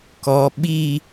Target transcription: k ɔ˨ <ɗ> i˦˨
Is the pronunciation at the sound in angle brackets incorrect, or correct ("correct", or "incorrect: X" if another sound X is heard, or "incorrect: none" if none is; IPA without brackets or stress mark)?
incorrect: ɓ